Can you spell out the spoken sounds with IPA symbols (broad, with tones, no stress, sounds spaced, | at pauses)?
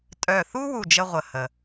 tʼ œ˧˩ θ u˥ w u˥˨ d͡ʒ ə˥ ʁʷ ə˧˩ h ə˩